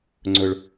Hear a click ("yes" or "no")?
yes